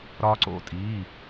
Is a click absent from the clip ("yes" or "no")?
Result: no